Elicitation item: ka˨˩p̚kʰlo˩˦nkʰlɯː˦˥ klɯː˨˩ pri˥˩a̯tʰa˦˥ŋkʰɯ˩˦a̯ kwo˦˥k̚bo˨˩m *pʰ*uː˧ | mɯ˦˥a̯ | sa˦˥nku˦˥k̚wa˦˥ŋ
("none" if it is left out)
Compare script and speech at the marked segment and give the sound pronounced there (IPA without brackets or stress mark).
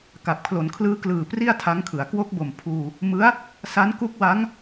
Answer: pʰ